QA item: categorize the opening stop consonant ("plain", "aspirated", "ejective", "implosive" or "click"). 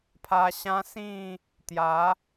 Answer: aspirated